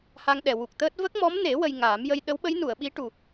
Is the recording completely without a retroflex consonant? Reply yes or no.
no